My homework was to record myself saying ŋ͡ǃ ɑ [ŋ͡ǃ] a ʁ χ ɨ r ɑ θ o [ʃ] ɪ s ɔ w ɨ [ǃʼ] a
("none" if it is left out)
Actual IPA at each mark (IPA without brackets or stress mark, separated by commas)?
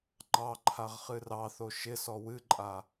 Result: ǃʰ, ʃ, ǃʼ